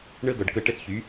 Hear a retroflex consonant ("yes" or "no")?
yes